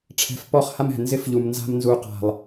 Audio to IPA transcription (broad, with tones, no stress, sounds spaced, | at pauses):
ʈ͡ʂʰ ɛ̤˨ f p ɔ˦˨ χ h a˦ m ɛ̤˨ n z ɪ˦ f ʎ u˨ m n z a̤˦ m n z u˦ q a̤˦˨ lˠ